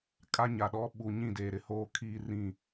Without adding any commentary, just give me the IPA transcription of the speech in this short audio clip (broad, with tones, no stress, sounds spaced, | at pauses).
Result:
kʼ a˦ ɲ a˨ ɗ ɔ˦ ɓ u˨ ɲ ĩ˦˨ d eː˨ ɾ ɪ˨ h oː˦ kʰ iː˦ r ĩ˦˨